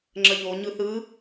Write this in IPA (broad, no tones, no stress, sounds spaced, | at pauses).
ŋ͡ǁ ə ʎ o ɲ ɯ θ ɯ